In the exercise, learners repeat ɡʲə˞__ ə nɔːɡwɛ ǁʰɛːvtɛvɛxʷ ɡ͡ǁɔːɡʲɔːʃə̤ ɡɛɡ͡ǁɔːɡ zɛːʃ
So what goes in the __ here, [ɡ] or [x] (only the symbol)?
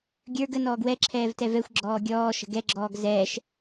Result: ɡ